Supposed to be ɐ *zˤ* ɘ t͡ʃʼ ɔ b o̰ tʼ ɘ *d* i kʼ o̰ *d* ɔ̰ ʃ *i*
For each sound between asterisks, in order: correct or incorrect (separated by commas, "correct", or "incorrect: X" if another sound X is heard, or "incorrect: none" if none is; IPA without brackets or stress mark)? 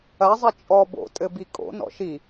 correct, incorrect: b, incorrect: n, correct